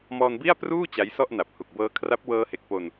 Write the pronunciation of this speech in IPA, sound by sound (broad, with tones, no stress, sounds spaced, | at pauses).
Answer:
m ɔː˧ n b i˥˩ a̯ p r uː˥˩ t͡ɕ a˦˥ j s ɔ˥˩ ʔ n a˨˩ p̚ h u˨˩ k̚ b ɤː˧ kʰ r a˦˥ p̚ w ɤː˧ h e˨˩ k̚ p o˧ n